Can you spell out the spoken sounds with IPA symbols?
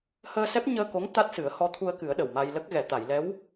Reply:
h əː˧ s ɛ˦˥ p̚ ɲ əː˧ k o˧˥ ŋ t̪ a˦˥ t̚ s ɨ˨˩˦ ə̯ h ɔ˧˥ t̪ʰ u˧ ə̯ k ɨ˨˩˦ ə̯ ɗ ə˨˩ w m a˧ j l ə˦˥ k̚ ɣ ɛ˨˩˨ t̪ a˨˩˨ j l ɛ˧˥ w

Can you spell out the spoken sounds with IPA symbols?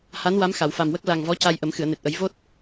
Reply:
h a˧˥ n w a˧˥ m x a˨˩˨ w f a˨˩ m w ə˦˥ k̚ l a˨˩ ŋ v ɔ˧˥ c a˧ j ʔ ə˨˩˦ m x ɨ˨˩˨ ə̯ n e˨˩ t̚ ʔ ə˨˩˦ j v o˦˥ t̚

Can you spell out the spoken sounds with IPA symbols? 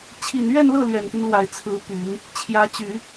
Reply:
t͡ɕʰ i˨˩ n ɥ ɛ˥˧ n l ɤ˥˩ l ɥ ɛ˨˩ n t̪ i˦ n l w a˨˩ ɪ̯ t͡sʰ ɹ̩˧˥ p y˨˩˦ n | t͡ɕʰ j ä˧˥ t͡ɕ y˨˩˦

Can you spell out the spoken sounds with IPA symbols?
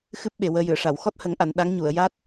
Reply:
x ɨ˦˥ p̚ ɓ e˨˩ w əː˧ j ɨ˨˩˨ ə̯ ʂ a˨˩˨ w x ɔ˦˥ t̚ h ə˨˩˦ ŋ ʔ a˨˩˨ n ɗ a˧˥ ŋ ɲ u˨˩˨ ə̯ j a˦˥ t̚

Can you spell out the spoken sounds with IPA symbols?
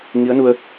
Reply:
ŋ i˧˥ ə̯ n u˧ ə̯

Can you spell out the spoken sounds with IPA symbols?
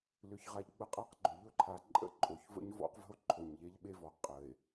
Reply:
l ʏ˨ ç ʁ a˨ ʎ ɡ͡b ə˦ qʼ a˦ q ɡ͡ǃ ʏ˨ ʎ ɵ˦ ǃʰ a˨ ǃʼ ə̰˦ ǃʼ o˨ ç v ə̰˦ ɲ v ɔ̰˦ q v ə̤˦ o̯ ǃʰ o˨ ɲ ʎ e˦ ʎ ɓ e˦ v ɔ˨ qʼ ə˨ e̯

